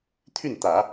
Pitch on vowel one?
falling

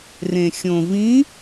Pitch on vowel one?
low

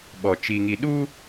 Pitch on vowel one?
low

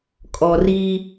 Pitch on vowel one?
low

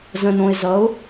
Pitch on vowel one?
low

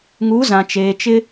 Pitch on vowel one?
rising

